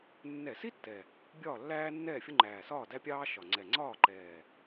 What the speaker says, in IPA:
nːɛ˧˩˧si˥ tːɛ˨˩ | bʲɒː˥˨lːæː˥nːɛː˥˨fʲʊ˥ ŋ͡ǃæː˨˩sɒː˥˨ dæ˥pʲɑː˥ ʃɒ˨˩ ŋ͡ǀɛ˨˩ ŋ͡ǀɒː˥˨ǃɛː˨˩

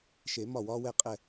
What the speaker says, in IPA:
ʃe˨˩˦ mɒ˧˩wɒː˧wɛ˧˩ qʼɛ˧˩

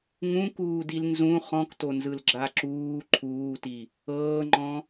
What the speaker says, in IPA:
ŋũkuːdil nzũ χɔ̃ktonzɯlɡ͡ǁa ǁuː ǃʰuːti | ɤːŋ͡ǃɔ̃

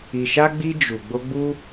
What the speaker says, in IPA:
i˧ʃa˦ɡ͡bi˦ d͡ʒu˧ ɡ͡bo˦ɡ͡bu˦

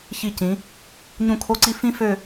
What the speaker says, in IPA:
çi˧˩cĩ˩˧ | ɲũ˥˧kʰo˥ǀi˥ fĩ˥fø˥˧

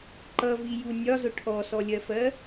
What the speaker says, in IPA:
ǃʌviju nʲɒzʊ ʈʰɔsɔlʲɜfɜ

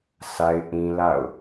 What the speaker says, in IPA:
sʰa˦ɪ̯ʔĩ˦la̰˦˨ʊ̯

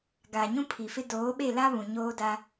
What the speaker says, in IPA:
ɡaː˨ɲũ˦pʰi˨fɪ˦ doː˨˦ɓe˦˨la˦ βũ˨ɲoː˦daː˦

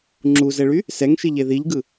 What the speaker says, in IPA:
ŋ͡ǁuzɛɭy | sɛŋʃiʎe ðiʎɡɯ

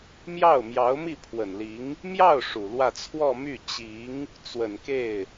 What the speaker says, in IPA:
mjɑ˥˩ʊ̯ mjɑ˧˥ʊ̯mi˥˩pʰwə˨˩nli˧˥ŋ | mjɑ˥˩ʊ̯ ʂu˨˩lwä˥˧ t͡sʰwɔ˥˧my˥˩ t͡ɕi˧˥ŋ | t͡swə˨˩nke˥˩ɪ̯

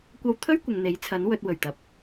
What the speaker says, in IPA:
kʷɐ˧wt̪ʰɵ˥ɥ kʷɪ˨ŋn̪e˨˥jt͡sʰɐ˨˥n wɵ˧t̚wɵ˨˩ɥt̪ɐ˨p̚

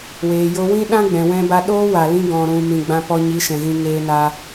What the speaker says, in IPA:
weː˨jo˧wĩ˦ ɗã˦ɡ͡bɛ̃˨wɛ̃˧ba˧ ɗoː˦wa˨lĩ˧ ɡɔ̃˨ɾũ˨ mĩ˨ɡ͡bã˧pɔ˧ ɲi˨˦ʃɛ̃˨ɣĩ˧ ŋeː˧na˧

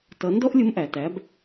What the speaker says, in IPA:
tʌ˩˧ ndɔ˥ʔlʲʊ˧˥mʔæ˩ tæ˩˧b

